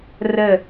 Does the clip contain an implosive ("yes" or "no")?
no